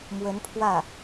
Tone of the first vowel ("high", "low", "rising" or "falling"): rising